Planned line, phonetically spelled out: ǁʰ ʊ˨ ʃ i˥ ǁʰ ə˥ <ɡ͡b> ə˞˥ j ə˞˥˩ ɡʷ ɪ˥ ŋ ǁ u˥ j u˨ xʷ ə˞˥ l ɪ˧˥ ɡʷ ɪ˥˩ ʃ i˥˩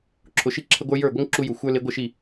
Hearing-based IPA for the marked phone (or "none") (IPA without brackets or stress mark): ɡʷ